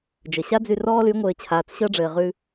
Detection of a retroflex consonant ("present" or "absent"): present